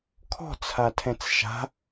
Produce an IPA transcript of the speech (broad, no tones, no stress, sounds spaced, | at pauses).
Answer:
kʰ ɔ̤ t͡sʰ a tʰ ɛ̃ t͡s ʃ a̤